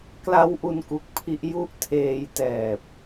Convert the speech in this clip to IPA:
kla˦˥w ʔu˧n ku˨˩k̚pʰi˦˥ʔ ju˥˩ʔ tʰeː˧jtɛː˨˩p̚

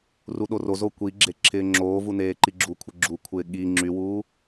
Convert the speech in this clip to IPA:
ruɗorozo kʷiɡ͡ǁe ǁʰɪːŋ͡ǁoːvu neːǃiɡ͡ǁukʷʰɪ ɡ͡ǁukʷʰɪː ɠi ŋ͡ǁywuː

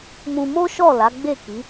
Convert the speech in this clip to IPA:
mũ˧mo˦ʃɔ˦˨ la˨˦ɡ͡be˦˨ ki˨˦

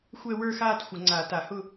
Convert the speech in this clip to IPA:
xʷɛ˥˧wə˞˥˧xaː˥˧t xʷə˨˩˦ŋ͡ǀa˨˩˦ta˨˩˦hʊ˥˧

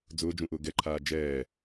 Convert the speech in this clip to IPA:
d͡zʊːd͡ʒũʔʊː ɡɛǃʰaː d͡ʒɛː

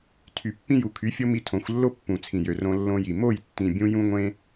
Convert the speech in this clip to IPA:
tʰy˨pːĩ˧ju˨kʰy˨˦ fʲo˦mi˧tʰõ˨˦xʷlːo˦ pːũ˨t͡sʰĩ˨jø˨ rõ˧lːõ˧ji˨ mo˦˨jtːĩ˨ bʲũ˦jũ˦ŋʷẽ˦

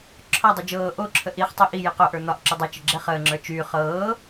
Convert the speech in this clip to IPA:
ǁʰɒdˤu d͡ʒɤː ʔoǁʰə ʔiχtˤi ʔi jiqoʔə˞ n̪ɒʔǁy dˤɤt͡ʃə ɡ͡ǁɛχəːŋ͡ǁə˞ t͡ʃyː χɤː

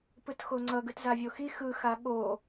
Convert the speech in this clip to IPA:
pɯtxoŋ͡ǀʌ ɡɯtzavʲoxi xɯxa ɠo

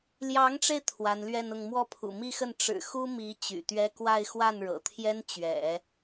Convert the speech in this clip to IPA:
ljɑ˧˥ŋʈ͡ʂe˧ɪ̯ t̪ʰwa˧˥nlɥɛ˥˧nʊ˥˧ŋ mwɔ˥˩pʰṵ˨˩mi˥˧xə˥˩n ʈ͡ʂɻ̩˨˩ xu˥mi˧˥ t͡ɕy̰˨˩t̪ɥɛ˥ kwa˥˧ɪ̯ xwa˥˩nɻɤ̰˨˩t̪ʰjɛ˥n t͡ɕɥɛ̰˨˩˦

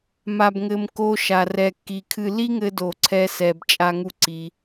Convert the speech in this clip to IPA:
ma˨bŋɘ˨m ko˧ʃa˨ rɛ˨kːi˨kʰɨ˧ li˦ŋɘ˧ do˨ǀʰɛ˧sɛ˨b t͡ʃʼa˦ŋu˦ǀi˧

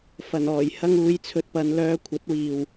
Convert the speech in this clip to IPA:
fɐ˨˩nɔː˨˩j hɐ˧ŋuː˨˧jt͡sʰɵ˨t̚pɐ˨˧n lœː˧kʷʰɐ˨˥t̚wiː˨w

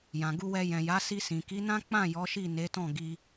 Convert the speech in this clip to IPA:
jã˨ɡu˧wɛ˧ jɛ̃˨ja˨˦ si˧sĩ˨ ki˨˦nã˦ k͡pã˦˨ jɔ˨˦ʃi˦˨ ne˨˦tɔ̃˦˨ ɡi˧

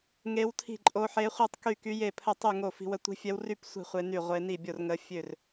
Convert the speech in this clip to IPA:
ŋe˦˥wtʰi̤˥˧ǃʼo˦˥ ħe˦˥χʷi˥˧tˤky˥˧ ky˦˥je˥˧pʰə˥˧ tˤy˥˧ŋo˥˧fi̤˦˥wə˦˥ tʷi̤˦˥fʲɛ˦˥wry˥˧p sʷi̤˥˧ χʷe˦˥ ny˥˧ʁʷe˦˥ ni˥˧bʲo˥˧rŋə˦˥ fʲø˥˧r

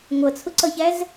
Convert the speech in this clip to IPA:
ŋʷʌt͡sʰʊǀʌçæz

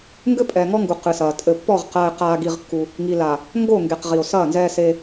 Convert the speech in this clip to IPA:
ŋɡɘ˦pʼɛː˨ŋɔ˦ŋɡu˨ qɨ˨sɐː˨ tʼɘ˨pːɔ˦˨ʁ qɐː˦e̯ qaː˦ɡi˦ʁkːu˦ | ŋi˨la˨ | ŋɡo˦˨ŋɡe˨q ʁi˨o̯ sɐː˦˨nzɛː˦se˦

